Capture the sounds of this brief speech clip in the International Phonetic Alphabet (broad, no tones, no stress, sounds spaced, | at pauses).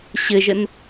ɕ ɘ ʒ ə n